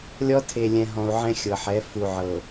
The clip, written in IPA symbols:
lʲ ɔ˦ tʰ e˨ lʲ ɛ̃˨ ɦ ɔ̃˨ u̯ ʕ ɛ̃˦ xʲ ɤ˨ ħ ɛ˨˦ f u˨ ʕ ɤ˨

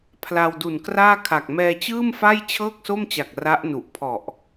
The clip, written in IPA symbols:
pʰ l a˧ w d u˨˩ n k r aː˥˩ kʰ a˨˩ k̚ m ɛː˧ t͡ɕ ɯː˥˩ m f a˥˩ j t͡ɕʰ ɤː˥˩ k̚ s o˥˩ m t͡ɕ a˨˩ k̚ r a˦˥ ʔ n u˨˩ ʔ pʰ ɔ˨˩ ʔ

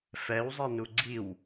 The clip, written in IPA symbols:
f ɛ w zˤ ɛ n u ɡ͡ǀ i w

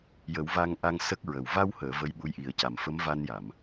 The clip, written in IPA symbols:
j ə˨˩˦ w v a˧ ŋ ʔ a˧ ŋ s ə˦˥ k̚ ɹ ə˨˩ w v a˧ w h əː˨˩˨ v ə˧˥ j ɓ u˧˥ j ʔ i˨˩˦ ə̯ c a˨˩ m f ə˧˥ m v a˧ n j a˨˩˨ m

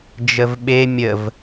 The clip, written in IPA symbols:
d͡ʒ ə v ɓ e mʲ ə v

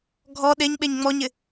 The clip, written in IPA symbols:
ɡʱ ɔ ɗ e ɲ ɓ e ɲ ŋ͡m ɔ ɲ ɪ

